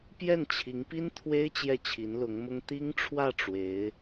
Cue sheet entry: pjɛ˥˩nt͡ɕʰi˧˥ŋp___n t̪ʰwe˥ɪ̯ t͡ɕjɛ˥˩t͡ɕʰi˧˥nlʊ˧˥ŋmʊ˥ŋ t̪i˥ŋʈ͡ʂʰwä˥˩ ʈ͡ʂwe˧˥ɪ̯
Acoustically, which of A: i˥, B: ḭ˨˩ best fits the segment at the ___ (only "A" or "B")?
A